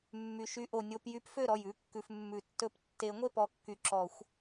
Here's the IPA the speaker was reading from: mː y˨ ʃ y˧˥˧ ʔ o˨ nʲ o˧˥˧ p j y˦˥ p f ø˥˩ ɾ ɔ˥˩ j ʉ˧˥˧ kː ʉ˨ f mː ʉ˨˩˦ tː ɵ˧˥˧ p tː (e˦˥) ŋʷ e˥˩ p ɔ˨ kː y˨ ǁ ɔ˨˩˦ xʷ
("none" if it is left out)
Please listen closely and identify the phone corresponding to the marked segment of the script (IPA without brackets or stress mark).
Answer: e˨˩˦